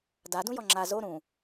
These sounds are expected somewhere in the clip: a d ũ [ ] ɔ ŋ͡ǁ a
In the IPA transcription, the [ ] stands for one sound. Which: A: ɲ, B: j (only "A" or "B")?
B